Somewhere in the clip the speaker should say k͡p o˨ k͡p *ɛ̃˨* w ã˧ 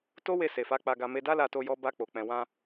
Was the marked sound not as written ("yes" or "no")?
no